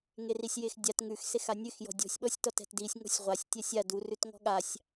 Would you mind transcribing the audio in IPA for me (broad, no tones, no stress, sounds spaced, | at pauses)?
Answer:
ŋ e r i sʲ j e x dʲ a t ŋ ʉ x s e x a nʲ ʉ x j ɔ̤ dʲ ɔ̤ sʲ ɓ ɔ sʲ t ɔ t ɛ̤ t d i sʲ ŋ ɔ̤ sʲ ʁʷ a sʲ tʲ ɛ sʲ a d u r ʉ t ŋ ɔ̤ ɠ a sʲ